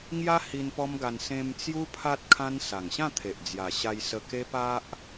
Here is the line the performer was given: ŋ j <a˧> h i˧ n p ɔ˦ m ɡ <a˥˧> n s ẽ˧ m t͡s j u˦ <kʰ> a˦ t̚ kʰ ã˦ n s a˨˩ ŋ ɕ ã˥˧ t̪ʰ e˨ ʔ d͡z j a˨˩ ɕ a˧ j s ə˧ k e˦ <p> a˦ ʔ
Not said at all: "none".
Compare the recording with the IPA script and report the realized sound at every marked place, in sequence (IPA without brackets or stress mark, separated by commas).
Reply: a˦, a˧, pʰ, p